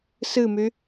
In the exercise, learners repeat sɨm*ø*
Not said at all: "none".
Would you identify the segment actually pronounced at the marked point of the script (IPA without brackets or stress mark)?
y